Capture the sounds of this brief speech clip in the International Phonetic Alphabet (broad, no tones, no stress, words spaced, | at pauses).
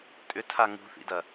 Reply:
tʼʏtʰa ŋṳθḭdɐ